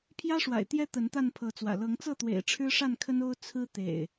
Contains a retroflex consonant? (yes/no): yes